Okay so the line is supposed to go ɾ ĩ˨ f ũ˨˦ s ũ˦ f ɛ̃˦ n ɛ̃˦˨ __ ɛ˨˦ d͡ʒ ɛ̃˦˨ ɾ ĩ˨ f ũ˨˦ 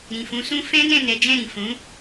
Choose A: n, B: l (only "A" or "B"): A